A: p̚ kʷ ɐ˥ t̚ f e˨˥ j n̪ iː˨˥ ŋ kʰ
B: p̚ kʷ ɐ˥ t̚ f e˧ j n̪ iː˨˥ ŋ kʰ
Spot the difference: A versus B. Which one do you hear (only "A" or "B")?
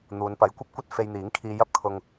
B